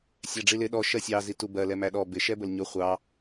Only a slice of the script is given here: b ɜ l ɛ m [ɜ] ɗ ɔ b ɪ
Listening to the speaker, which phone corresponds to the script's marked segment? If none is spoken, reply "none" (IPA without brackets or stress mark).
æ